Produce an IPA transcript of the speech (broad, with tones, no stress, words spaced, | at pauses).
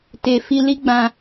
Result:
te˨ fi˧li˦ ɡ͡bã˧